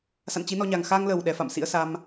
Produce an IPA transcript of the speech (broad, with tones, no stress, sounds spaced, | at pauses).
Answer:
s a̰˧˨ n t͡ɕ i˨˦ n ɔ˧ ɲ a˨˩ ŋ x a˧ ŋ l ə˨˩ w ɗ ɛ˨˦ f a̰˧˨ m s ḭ˧˥ ə̯ s a˧ m